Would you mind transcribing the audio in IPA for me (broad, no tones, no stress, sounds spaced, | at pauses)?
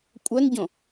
kʷʼ œ n ɟ õ